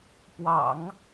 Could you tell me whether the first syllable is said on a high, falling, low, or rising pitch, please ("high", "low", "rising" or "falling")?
low